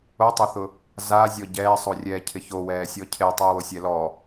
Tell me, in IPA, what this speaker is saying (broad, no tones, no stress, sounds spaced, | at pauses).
o tˤ o θ ʊ | z a zʲ ɔ ɟ ɛː sˤ o rʲ ɛː cʰ ɪ ç o w ɛː sʲ ɔ cʰ e tˤ ʊ y̯ w o sʲ ɛ l ɔ